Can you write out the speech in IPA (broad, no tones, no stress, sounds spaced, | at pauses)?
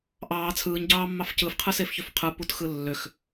ʔ ɑː t͡sʰ ɯː ɲ ɟ ɑː mː ɑ f c ɯ f qʰ ɯ s e f ç ø f qʰ ɯ p u t x ɯ lː ø x